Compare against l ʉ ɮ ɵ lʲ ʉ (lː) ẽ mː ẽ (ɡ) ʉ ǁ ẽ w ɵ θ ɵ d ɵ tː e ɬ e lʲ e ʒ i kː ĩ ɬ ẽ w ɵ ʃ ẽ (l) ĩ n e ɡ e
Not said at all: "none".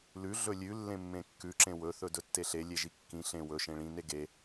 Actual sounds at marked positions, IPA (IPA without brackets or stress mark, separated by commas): lː, kː, ɭ